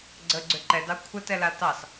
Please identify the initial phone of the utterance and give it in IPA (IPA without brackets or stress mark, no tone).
ɡ͡ǀ